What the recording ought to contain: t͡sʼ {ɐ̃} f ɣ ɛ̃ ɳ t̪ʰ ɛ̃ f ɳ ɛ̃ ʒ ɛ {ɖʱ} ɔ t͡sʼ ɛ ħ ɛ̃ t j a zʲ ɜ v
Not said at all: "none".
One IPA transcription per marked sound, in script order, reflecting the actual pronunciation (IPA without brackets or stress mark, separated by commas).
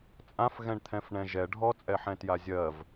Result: ã, ɖʱ